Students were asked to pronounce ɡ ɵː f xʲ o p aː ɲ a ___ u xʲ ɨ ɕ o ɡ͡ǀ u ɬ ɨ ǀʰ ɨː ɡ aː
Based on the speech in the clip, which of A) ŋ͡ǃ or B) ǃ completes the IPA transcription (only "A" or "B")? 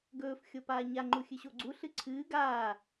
A